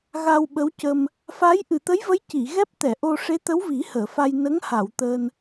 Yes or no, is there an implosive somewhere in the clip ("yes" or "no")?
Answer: yes